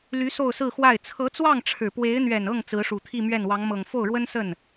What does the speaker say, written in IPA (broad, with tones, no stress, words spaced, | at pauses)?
ly˧˥ so˥˧ʊ̯sɹ̩˥˧xwa˥˩ɪ̯ t͡sʰɤ˧˥t͡swɑ˥˩ŋ ʈ͡ʂʰɻ̩˨˩ pwe˧˥ɪ̯n̪ɥɛ˨˩nɤ˥˩ŋ t͡sɹ̩˧˥ʂu˨˩ t̪ʰi˥˧mɥɛ˥˩n wɑ˧˥ŋmɤ˨˩ŋ fo˥˩ʊ̯ɻwə˥nsə˥˩n